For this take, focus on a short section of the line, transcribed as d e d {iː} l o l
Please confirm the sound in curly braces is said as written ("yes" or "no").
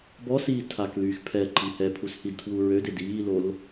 yes